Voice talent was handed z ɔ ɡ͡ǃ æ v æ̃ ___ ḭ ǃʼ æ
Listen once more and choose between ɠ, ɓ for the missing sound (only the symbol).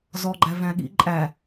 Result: ɠ